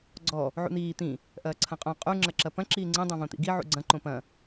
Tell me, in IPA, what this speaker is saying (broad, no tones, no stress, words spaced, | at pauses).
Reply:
ɡ͡ǀɔ | ʕṵn̪iː t̪ĩ | ʔɐːǀʰɐ̃qʼõ qʼu ŋ͡ǁɐǁɐpɐ̃ ǁiːŋ͡ǀĩ dˤõvõt̪ḭɡi ʕṵɡ͡ǀɐ̃ ǃõpɐ̃